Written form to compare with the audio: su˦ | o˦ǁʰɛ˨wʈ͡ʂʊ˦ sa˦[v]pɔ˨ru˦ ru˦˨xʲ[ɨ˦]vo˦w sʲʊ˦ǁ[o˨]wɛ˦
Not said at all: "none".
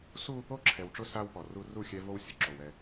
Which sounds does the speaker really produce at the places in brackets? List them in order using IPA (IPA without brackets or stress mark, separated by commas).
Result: w, ɛ˦, o˨